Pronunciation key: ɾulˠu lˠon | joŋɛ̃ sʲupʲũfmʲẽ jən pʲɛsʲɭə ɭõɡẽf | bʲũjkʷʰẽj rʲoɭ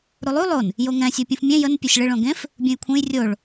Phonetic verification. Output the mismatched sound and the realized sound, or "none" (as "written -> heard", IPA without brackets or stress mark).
none